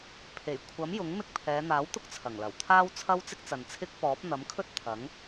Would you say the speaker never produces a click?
yes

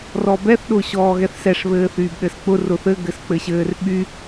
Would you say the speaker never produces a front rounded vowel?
no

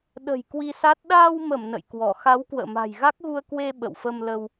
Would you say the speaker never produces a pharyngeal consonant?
yes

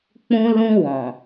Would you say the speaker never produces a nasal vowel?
no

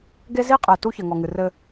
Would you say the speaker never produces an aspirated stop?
yes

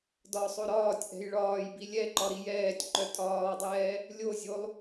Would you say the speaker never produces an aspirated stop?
yes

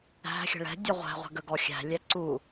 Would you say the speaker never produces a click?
no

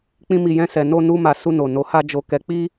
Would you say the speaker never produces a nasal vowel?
no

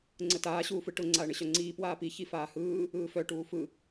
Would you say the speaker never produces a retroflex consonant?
no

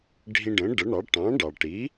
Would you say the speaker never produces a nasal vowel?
no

